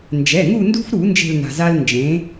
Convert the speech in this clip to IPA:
n d͡ʒ ɛ˩˧˩ ŋ u˦˨ n d ṳ˦ f ɾ u˧˩˧ n d͡ʒ e̤˦˨ l n a̤˩ z a˦ l n d͡ʒ ẽ˩˥

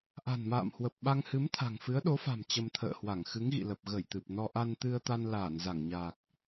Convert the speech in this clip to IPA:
ʔ a̤˨˩ n m a̰ː˧˨ m h w ə˨˩ p̚ ɓ a˧ ŋ h ɨ˨˦ m t̪ʰ a̤˨˩ ŋ f ɨ˨˦ ə̯ ɗ o˨˦ f a̤˨˩ m t͡ɕ ə˧ m t̪ʰ ə̰ː˧˨ h w a˧˩ ŋ x ɨ˨˦ ŋ ɣ ḭ˧˨ l ə˨˩ p̚ ɣ ə˧˩ j t̪ ɨ˨˩ p̚ n ɔ˧ ʔ a˧ n t̪ ɨ˧ ə̯ t̪ a˧ n l aː˧˩ n z a˧˩ ŋ ɲ aː˨˩ k̚

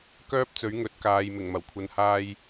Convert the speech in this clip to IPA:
k œː˥ p̚ t͡s ɵ˨˥ ɥ ŋ ɵ˨˥ t̚ k aː˨ j m ɪ˨˩ ŋ m ɐ˨˩ w kʷʰ ɐ˨ n h aː˧ j

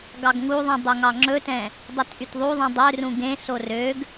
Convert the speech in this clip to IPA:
ɡ ɑ ɡ ŋ u ðˤ ĩ dˤ ø ŋ ɑ ŋ͡ǁ ɵ t ɛ̃ | dˤ i t ʔ y t ðˤ u ðˤ ĩ dˤ ø r ũ ɡ ẽ s o r ø ɡ

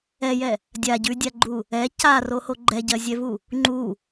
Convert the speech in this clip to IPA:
ɛ j ɛ | dʲ a ɟ ʉ dʲ a ɡ͡ǃ u | ɛ c a r o h o ɡ͡ǃ ɛ ɟ ɜ zʲ ɛ v u | ŋ͡ǃ u

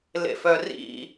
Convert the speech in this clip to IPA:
l ḛ f œ r ḭ

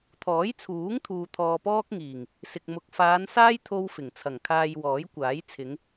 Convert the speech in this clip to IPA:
t̪ʰ ɔː˨˥ j t͡sʰ uː˨˥ ŋ t̪ʰ uː˨ t̪ʰ ɔː˧ p ɔː˥ k̚ ŋ iː˨˩ ŋ | s ɪ˨ k̚ m ʊ˨ k̚ f aː˨˧ n s aː˥ j t̪ʰ o˥ w f ɪ˨˩ ŋ t͡sʰ ɐ˨˩ ŋ kʰ aː˧ j w ɔː˨˥ j kʷ aː˨˥ j t͡sʰ ɪ˨˧ ŋ

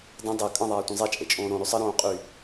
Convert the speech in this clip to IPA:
d ə̃ dˤ e kʼ ə̃ ðˤ aː tʷ ə̃ zˤ e t͡ʃʼ e t͡ʃʼ õː ɾ õ ɾ y sˤ ə ɾ õː qʼ y

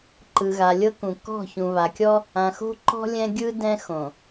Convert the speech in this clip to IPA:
ǃ ɯ˨ ɣ a˨ lʲ ɤ˦ k ũ˨ k ɔ̤˦˨ ç ũ˨ β a˨ kʲ ɔ˦ | ã˨ x o̤˦ ǃ ɔ̤˦ lʲ ɛ̃˦ ɡʲ ɯ˦ d ɛ̃˦ x õ˨

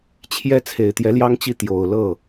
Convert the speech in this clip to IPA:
t͡ɕʰ j ɛ˥ t͡sʰ e˨˩ ɪ̯ t̪ j ɛ˧˥ l j ɑ˥ ŋ t͡ɕ i˥˩ t̪ j o˨˩ ʊ̯ l ɤ˥˩

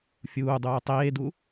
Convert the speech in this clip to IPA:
fʲ uː dˤ uː tˤ eː d u

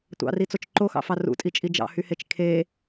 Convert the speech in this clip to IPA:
tʷ ɑ̰ r i t͡s o t͡ʃ ǃ o x ɑ̰ f ɑ r ṵ tʼ i t͡ʃʼ i d͡ʒ ɑ̰ h y h e t͡ʃ kʰ e

